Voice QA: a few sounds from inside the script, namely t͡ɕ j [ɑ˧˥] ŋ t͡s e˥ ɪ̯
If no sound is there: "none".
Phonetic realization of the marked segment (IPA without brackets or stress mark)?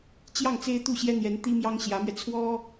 ɑ˥˩